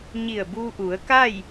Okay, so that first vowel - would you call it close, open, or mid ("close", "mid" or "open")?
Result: close